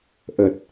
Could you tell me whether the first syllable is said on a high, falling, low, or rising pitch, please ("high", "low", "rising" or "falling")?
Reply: low